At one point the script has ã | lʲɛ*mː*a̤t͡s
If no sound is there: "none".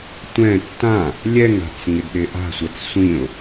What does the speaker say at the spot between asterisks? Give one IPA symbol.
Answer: ŋ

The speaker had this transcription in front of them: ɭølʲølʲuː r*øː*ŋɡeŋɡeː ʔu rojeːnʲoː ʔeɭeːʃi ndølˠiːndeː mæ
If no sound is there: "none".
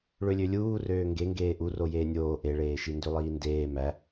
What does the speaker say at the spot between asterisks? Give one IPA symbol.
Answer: øː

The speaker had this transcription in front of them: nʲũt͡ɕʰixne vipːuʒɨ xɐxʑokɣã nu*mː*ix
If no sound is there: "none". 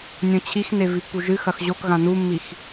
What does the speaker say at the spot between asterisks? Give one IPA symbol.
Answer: mː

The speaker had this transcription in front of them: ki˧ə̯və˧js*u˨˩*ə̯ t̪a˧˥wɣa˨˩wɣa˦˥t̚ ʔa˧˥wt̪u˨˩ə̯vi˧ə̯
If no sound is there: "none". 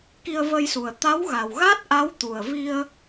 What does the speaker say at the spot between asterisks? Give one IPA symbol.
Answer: u˨˩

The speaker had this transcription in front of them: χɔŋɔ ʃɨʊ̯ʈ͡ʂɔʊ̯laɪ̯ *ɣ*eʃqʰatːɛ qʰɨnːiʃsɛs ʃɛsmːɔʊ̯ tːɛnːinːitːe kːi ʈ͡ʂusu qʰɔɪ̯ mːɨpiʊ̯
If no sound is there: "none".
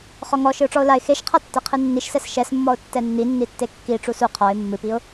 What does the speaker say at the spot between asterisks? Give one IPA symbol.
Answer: x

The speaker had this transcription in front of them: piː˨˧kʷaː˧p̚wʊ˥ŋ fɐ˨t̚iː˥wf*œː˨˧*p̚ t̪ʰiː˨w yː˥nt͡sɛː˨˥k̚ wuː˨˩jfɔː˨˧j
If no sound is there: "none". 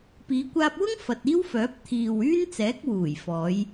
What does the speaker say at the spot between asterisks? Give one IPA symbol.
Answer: œː˨˥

